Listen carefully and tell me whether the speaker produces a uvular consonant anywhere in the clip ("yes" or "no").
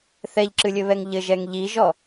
no